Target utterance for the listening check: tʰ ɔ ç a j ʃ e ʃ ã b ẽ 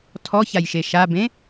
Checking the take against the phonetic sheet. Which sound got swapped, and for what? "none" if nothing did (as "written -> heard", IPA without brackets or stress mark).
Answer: ã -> a